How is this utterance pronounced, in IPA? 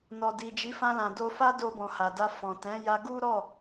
n ɔ˨ d i˨ d͡ʒ i˨˦ f ã˧ l ã˨ d o˧ f a˦ d o˧ b ɔ̃˨ h a˨ d a˧ f ɔ̃˨ t ɛ̃˨˦ j a˧ ɡ u˦ ɾ ɔ˦˨

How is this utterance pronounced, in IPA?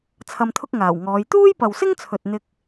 t͡sʰ ɐ˧ m t̪ʰ ʊ˥ k̚ ŋ aː˨˩ w ŋ ɔː˨˧ j t̪ uː˥ j p ɐ˨ w s ɪ˥ ŋ t͡sʰ ɵ˨ t̚ n̪ ɪ˥ k̚

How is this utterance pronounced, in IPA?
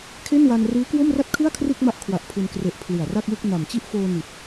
kʰ e˥˩ n w a˧ n r ɯː˦˥ k w o˥˩ m r a˥˩ t̚ kʰ ɯ˥˩ a̯ kʰ r ɯ˥˩ k̚ m a˦˥ ʔ kʰ w a˨˩ ʔ pʰ u˧ n k r e˦˥ ʔ pʰ l ɯ˨˩ a̯ r a˥˩ k̚ w ɯ˥˩ k̚ n a˨˩ m t͡ɕ i˥˩ ʔ f oː˧ n i˨˩ t̚

